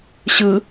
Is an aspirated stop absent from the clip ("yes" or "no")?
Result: yes